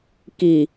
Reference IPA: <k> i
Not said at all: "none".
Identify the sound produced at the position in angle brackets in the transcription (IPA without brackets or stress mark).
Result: k